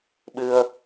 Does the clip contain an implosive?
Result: yes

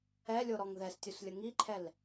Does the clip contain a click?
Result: yes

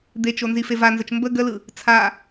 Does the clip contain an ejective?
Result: no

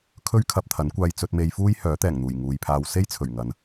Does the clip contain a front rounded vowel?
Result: yes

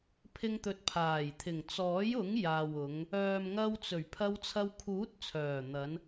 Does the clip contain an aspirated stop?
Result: yes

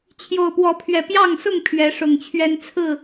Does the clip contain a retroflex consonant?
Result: yes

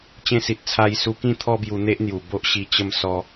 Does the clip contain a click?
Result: no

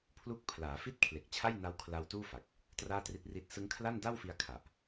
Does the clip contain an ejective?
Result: no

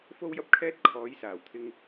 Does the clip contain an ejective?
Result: no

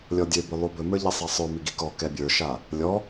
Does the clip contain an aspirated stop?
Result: no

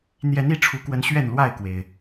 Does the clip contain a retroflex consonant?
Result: yes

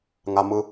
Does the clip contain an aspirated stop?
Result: no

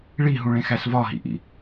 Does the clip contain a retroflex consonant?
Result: yes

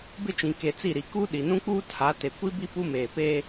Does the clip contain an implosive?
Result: yes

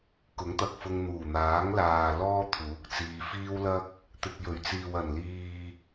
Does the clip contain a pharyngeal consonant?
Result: no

